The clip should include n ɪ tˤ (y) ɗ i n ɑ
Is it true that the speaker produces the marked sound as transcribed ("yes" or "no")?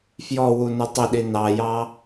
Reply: no